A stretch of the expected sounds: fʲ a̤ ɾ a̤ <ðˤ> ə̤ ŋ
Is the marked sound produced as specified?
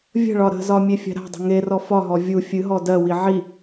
no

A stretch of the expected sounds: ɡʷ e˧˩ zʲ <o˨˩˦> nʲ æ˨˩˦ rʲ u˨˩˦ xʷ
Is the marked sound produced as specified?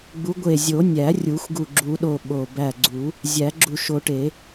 yes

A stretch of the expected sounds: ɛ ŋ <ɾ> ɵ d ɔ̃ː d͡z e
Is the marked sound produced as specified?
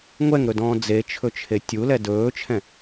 yes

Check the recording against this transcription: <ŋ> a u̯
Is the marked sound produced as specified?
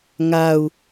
yes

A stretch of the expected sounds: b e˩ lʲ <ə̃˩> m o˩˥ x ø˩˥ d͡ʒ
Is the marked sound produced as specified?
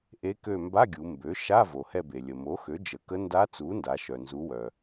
no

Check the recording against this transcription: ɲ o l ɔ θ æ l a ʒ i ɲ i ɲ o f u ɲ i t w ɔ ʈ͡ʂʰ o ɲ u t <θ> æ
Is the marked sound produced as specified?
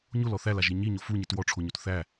yes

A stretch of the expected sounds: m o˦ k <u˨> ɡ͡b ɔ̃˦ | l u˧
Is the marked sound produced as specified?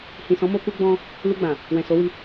no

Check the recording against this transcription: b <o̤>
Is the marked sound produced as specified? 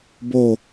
no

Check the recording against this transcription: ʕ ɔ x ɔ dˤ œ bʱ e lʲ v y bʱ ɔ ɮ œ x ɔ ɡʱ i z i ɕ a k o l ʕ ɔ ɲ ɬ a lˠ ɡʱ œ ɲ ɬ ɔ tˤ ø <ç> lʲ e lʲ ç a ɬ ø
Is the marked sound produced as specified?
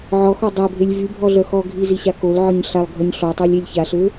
no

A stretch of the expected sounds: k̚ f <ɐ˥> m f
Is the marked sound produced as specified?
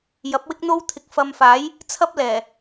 no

